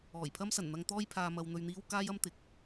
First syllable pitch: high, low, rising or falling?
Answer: low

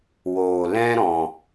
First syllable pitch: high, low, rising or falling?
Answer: low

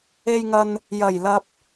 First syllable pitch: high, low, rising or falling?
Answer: low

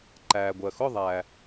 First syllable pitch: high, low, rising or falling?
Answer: low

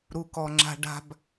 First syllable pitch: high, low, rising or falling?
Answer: low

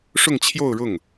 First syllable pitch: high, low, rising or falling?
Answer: falling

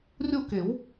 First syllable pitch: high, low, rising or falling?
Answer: falling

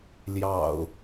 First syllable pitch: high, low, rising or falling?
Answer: low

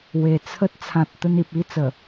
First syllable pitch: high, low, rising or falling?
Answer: low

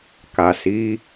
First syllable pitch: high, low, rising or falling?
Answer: low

